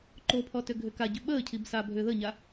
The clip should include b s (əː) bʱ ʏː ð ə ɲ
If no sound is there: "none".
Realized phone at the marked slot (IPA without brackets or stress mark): aː